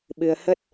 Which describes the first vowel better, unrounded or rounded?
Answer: unrounded